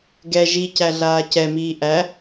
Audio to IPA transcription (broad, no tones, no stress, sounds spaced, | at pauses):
ɡ ɛ ʒ i c æ ɮ aː c ɛ m iː ʔ æ